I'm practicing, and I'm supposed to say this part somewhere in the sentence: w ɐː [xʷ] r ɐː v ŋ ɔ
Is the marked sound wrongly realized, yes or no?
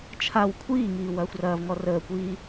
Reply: no